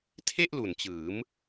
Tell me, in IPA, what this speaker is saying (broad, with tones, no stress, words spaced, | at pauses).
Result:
tʰe˥˩ʔ lu˨˩nt͡ɕɯː˩˦m